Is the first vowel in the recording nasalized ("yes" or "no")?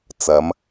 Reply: no